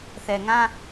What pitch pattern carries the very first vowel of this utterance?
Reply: low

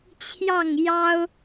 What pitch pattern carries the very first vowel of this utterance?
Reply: falling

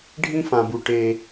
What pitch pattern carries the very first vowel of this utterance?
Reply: high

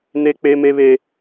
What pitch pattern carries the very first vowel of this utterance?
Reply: high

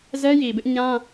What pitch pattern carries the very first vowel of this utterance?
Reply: high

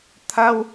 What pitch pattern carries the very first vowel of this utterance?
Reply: high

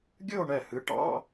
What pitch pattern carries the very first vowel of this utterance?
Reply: falling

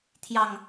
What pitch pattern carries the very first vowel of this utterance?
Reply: low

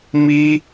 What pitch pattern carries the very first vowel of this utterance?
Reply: high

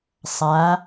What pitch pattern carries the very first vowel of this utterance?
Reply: rising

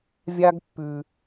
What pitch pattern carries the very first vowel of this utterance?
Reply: high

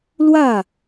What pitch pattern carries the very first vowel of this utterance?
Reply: falling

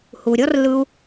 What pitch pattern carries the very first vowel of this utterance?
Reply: low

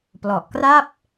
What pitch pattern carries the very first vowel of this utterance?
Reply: low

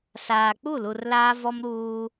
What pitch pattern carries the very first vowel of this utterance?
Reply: low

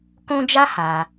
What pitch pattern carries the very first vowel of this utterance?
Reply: high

